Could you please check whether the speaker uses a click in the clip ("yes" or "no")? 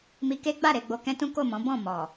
no